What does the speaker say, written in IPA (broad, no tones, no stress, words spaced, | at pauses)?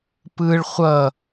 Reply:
pɯɭ χʷʌ